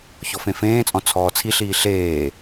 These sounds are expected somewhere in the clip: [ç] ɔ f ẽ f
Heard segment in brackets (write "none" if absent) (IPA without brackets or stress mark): ç